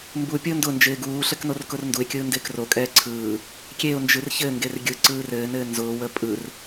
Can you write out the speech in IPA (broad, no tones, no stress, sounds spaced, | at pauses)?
m b u pʲ ʊː n d ʊ n d͡ʒ ɪː ɡ uː ɬ ɘ k n o r k ʊ r n d u ɪ̯ kʲ ɯː n d ɪː k r o kʼ ɛː ǀʰ ɯː | kʲ e ʊ̯ n d͡ʒ ɯ r ç ɘ ŋ ɡ e r ɡʲ ɯ ǀ ɯː r ɘː n ɘː n z ʊː w ə pʼ ɯ r